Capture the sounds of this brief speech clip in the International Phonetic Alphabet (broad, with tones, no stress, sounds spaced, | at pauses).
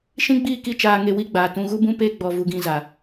ʃ ĩ˦ ɡ͡b iː˦˨ k i˦ t͡ʃ aː˧ ŋ e˧ w i˦ ɡ͡b aː˨ t ũ˧ ɣ u˦ b ũ˦ p eː˦ ɡ͡b ɔ˧ v u˧ ɡ ĩ˧ z a˨